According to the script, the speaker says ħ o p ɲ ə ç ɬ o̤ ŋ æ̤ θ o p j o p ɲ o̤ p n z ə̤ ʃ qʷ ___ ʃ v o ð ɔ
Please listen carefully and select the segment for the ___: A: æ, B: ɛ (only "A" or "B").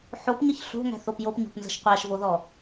A